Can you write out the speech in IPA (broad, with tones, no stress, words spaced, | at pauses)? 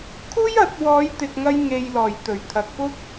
kʰuː˥jɐ˨˥t̚ wɔː˨˧jt̪ɪ˨k̚ŋɐ˧j ŋe˨jlɔː˨˩j t̪ɵ˨˩ɥt̪ʰɐ˨k̚fʊ˥k̚